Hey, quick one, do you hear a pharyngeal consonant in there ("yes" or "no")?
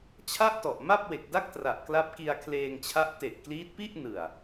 no